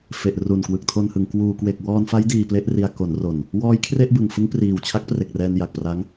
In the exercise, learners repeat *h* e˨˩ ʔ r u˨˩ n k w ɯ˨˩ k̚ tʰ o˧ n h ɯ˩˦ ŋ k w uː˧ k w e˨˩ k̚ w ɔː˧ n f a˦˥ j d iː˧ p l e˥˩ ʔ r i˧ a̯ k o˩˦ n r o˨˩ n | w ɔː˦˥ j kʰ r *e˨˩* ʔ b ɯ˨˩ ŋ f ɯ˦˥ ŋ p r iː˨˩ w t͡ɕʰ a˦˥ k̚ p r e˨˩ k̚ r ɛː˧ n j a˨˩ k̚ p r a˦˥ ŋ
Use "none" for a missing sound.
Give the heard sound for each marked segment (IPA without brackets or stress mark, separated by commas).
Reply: f, e˥˩